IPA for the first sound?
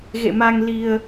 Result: ɣ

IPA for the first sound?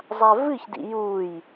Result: zˤ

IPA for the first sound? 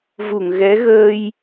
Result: v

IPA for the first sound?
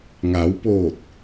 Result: ŋ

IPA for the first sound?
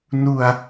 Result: n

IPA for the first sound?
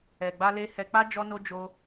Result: ɛ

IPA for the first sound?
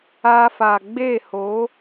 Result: aː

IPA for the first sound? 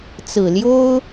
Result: t͡s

